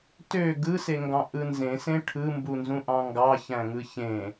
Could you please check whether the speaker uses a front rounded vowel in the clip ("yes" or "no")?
yes